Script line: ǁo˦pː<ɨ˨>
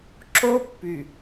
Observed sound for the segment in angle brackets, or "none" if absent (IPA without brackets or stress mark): y˨